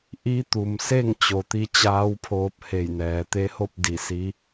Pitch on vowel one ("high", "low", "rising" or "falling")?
rising